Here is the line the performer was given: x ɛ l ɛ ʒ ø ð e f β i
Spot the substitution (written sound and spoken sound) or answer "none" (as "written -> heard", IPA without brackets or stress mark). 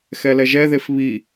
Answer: ø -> ɛ